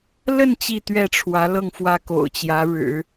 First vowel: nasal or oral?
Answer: oral